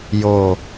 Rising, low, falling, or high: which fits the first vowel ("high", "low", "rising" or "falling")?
low